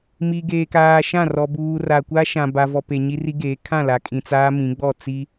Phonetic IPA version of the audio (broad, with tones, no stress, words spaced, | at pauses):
mi˨ ɡeː˨kaː˨ʃã˦˨rɔ˨ buː˨ra˨kʷa˦ ʃã˨ba˨vɔ˨pe˨ ɲi˦ri˦ɡeː˨˦ kʰã˦˨la˨kʼĩ˨ t͡saː˦mĩ˨˦ɡ͡bɔ˦˨ t͡si˦